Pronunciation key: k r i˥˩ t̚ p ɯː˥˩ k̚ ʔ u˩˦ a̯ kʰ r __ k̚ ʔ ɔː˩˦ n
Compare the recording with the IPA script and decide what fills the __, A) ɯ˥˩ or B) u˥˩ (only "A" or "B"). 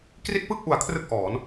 A